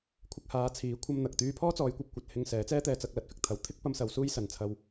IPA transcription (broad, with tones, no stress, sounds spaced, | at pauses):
kʷʰ ɪ˧ k̚ h aː˨˧ t͡sʰ iː˨˥ kʷʰ ɐ˧ m n̪ ɐ˨ k̚ t̪ yː˧ pʰ ɔː˥ t͡s ɔː˨˧ j kʷ ɐ˨ p̚ kʷ ɐ˨ t̚ h ɪ˧ ŋ s ɛː˨˥ t͡s ɛː˥ t̪ ɛː˧ t͡s ɐ˧ k̚ l ɐ˨˥ t̚ f ɪ˧ k̚ t̪ʰ ɐ˨˧ w t̪ʰ ɪ˥ k̚ p ɐ˧ m s ɐ˨˧ w s uː˥ j s ɐ˨˧ n t͡sʰ ɐ˧ w